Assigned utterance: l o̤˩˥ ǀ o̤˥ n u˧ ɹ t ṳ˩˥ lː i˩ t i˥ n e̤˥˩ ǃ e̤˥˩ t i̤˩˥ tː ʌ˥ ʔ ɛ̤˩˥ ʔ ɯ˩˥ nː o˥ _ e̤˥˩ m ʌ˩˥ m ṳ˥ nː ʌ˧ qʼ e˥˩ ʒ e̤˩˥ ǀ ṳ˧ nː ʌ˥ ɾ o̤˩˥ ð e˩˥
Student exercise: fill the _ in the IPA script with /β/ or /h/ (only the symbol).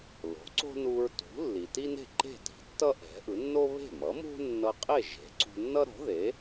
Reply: β